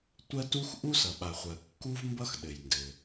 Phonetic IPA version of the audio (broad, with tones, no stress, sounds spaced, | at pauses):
tʷ ɜ˥ t u˥ x ʔ u˥ s ʌ˩ ɓ a˩ χʷ ɜ˩ kː u˥ v m b ʌ˥ x ɗ ɘ˩ j n d ɘ˩